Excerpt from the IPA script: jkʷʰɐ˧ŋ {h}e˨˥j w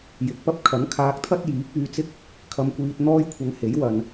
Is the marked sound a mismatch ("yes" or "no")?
no